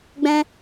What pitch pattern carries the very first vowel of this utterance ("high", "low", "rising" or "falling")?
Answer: high